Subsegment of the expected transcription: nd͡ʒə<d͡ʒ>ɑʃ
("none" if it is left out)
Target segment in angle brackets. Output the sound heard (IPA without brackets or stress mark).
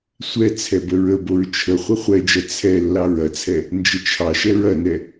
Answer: t͡ʃʰ